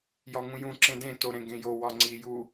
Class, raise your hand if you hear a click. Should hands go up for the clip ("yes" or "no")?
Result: yes